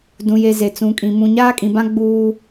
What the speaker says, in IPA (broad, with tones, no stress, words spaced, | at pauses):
dũ˨je˨ ze˨t͡sũ˨kʼĩ˨ mũ˨ɲaː˦kʼĩ˨bã˦ ɡ͡buː˦